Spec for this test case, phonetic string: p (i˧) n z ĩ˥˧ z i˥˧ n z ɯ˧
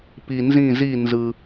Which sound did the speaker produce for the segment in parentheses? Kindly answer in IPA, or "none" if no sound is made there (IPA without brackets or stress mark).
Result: i˧